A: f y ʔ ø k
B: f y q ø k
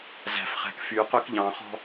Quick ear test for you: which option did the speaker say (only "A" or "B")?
B